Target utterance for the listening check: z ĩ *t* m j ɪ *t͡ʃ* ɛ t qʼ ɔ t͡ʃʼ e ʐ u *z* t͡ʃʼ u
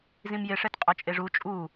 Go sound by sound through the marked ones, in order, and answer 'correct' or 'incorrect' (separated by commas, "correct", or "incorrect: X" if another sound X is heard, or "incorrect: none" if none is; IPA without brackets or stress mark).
incorrect: none, incorrect: ʂ, incorrect: none